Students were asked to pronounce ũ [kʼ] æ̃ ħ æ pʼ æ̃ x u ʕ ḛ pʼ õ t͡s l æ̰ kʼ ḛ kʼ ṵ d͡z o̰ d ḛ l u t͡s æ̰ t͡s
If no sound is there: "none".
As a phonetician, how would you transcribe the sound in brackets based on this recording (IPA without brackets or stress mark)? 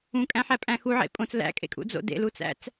kʼ